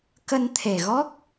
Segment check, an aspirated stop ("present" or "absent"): present